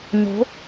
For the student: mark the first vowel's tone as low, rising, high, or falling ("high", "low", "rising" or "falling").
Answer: rising